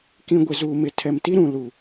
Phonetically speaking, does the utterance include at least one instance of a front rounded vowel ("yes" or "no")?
no